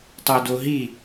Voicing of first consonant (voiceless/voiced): voiceless